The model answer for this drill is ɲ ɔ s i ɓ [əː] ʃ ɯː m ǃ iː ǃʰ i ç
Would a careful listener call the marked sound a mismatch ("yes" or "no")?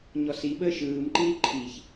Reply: no